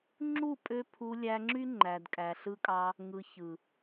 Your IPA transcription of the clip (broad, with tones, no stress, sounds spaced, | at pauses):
ŋ͡ǁ u˦˨ pʼ ø˧ pʰ u˧ lʲ æ˧ ŋ͡ǁ y˦ ŋ͡ǃ æ˨ d kʼ æ˨ ɬ ɯ˧ kʼ ɑ˧ | ŋ ɯ˨ ç ɯ˨